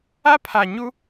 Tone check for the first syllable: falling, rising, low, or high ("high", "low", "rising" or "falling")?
high